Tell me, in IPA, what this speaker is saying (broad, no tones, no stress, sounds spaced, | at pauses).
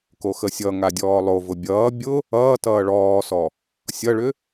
k o x ə sʲ ʌ ŋ a dʲ ɔː lˠ o v ʊ bʲ ʌː bʲ ʊ | ʌː t ʌː ɭ ɔː s ɔ | sʲ ʌ ɭ ʏ